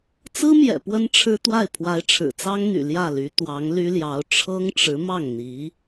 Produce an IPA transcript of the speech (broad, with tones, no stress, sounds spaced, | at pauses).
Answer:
t͡s ɹ̩˥ m j ɛ̰˨˩ p w ə˥ n ʈ͡ʂʰ ɻ̩˥ t̪ w a˥˩ ɪ̯ pʰ w a˧˥ ɪ̯ ʈ͡ʂʰ ɻ̩˨˩ t͡s ɑ˥ ŋ n̪ y̰˨˩ l j ä˥˩ l y˧˥ t̪ w ɑ˧˥ ŋ l y˥ l j ɑ˧˥ ʊ̯ ʈ͡ʂʰ ɤ˥ ŋ ʈ͡ʂ ɻ̩˧˥ m ɑ˥˩ ŋ n̪ i˧˥